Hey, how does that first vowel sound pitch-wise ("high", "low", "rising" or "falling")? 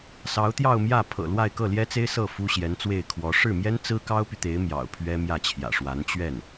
rising